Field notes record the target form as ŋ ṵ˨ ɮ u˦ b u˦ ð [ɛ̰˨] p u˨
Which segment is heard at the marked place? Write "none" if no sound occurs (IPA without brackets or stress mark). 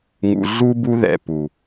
ɛ̰˨